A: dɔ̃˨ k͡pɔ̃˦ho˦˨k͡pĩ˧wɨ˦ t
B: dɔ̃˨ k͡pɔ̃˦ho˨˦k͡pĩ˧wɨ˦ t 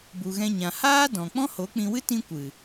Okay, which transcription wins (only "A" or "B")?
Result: B